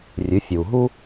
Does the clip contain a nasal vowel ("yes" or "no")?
no